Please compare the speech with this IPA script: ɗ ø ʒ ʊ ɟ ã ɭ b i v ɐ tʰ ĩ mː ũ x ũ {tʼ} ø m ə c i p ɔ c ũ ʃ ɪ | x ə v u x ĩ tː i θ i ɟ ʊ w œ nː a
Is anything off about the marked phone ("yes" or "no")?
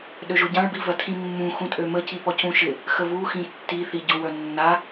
no